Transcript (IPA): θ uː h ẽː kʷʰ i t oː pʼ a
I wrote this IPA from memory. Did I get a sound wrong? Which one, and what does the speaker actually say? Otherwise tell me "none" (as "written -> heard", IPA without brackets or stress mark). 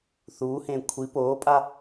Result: t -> p